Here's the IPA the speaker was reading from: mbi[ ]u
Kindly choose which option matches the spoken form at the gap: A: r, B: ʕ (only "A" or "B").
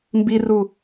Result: A